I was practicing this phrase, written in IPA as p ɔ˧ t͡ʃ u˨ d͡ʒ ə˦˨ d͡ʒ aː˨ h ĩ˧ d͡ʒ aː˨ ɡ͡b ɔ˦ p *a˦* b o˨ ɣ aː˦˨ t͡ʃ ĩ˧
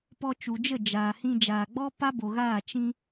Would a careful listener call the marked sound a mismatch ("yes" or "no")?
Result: no